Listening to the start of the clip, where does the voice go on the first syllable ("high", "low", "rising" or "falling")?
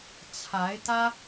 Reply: rising